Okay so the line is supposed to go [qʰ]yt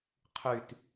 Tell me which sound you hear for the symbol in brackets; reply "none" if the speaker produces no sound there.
qʰ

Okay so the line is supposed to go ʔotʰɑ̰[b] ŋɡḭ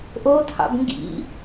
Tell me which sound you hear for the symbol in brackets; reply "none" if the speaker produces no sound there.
b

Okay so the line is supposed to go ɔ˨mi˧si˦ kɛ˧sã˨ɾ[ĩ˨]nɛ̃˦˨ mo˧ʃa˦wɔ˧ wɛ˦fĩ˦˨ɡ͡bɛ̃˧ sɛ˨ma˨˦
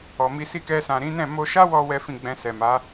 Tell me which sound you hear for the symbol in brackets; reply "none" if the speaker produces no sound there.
ĩ˨˦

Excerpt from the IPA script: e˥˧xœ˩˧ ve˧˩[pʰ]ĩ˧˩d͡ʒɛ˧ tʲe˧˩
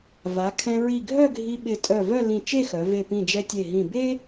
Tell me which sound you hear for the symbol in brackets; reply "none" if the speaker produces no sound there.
p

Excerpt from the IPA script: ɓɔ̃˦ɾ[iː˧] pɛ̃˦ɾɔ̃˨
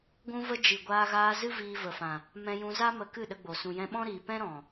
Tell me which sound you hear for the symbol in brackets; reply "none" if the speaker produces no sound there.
iː˨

